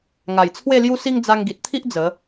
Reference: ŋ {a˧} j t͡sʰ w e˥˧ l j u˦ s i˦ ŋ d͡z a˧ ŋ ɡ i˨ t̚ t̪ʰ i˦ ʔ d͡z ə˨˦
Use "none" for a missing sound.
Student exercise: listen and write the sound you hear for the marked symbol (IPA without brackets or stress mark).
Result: a˨˩